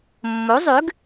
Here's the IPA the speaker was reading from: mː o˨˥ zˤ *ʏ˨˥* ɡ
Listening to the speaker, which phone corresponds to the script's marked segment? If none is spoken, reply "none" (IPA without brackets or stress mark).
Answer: ʏ˨˥